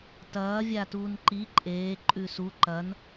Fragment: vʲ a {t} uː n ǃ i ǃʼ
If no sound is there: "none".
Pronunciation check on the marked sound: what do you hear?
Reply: t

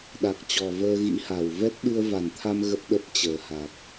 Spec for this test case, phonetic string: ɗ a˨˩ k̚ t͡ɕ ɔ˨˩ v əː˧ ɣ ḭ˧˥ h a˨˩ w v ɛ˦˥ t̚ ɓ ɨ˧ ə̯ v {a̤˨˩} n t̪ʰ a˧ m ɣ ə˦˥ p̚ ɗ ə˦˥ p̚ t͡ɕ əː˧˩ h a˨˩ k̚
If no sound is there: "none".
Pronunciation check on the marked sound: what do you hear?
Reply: a˧˩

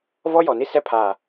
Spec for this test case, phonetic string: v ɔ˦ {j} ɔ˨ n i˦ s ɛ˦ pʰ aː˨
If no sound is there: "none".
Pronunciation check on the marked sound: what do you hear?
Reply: j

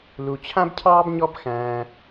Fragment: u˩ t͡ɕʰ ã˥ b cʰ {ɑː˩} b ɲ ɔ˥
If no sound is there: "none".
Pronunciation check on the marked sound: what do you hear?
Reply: ɑː˥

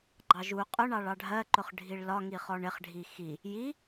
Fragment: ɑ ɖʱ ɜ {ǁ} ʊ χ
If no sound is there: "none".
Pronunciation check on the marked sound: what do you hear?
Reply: ǃ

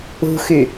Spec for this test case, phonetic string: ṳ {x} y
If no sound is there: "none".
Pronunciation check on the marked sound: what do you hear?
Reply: x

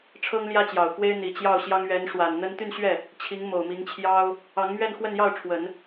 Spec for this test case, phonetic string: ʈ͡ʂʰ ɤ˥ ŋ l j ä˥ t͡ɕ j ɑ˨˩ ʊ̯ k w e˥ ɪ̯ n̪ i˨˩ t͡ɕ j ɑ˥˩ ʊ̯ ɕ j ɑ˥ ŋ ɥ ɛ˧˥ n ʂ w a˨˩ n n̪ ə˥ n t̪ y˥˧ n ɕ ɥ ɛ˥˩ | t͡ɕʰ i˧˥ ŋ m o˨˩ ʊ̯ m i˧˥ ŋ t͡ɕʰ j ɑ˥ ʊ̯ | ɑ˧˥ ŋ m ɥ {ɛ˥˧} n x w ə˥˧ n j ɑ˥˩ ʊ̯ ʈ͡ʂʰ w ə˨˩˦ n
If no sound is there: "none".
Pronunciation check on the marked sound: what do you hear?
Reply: ɛ˥˧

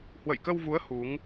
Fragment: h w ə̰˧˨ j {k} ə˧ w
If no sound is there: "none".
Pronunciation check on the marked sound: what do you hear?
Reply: k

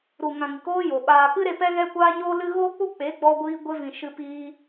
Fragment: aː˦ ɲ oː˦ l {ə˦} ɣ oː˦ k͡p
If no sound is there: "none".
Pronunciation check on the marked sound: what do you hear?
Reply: ɨ˦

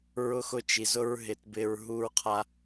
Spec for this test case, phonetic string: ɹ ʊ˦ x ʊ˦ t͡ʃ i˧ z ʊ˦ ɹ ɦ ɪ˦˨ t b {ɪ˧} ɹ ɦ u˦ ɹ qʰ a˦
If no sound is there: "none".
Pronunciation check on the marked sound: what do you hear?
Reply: ɪ˦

